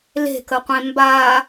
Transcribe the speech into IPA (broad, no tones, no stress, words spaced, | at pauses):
le̤kəqʷẽ mba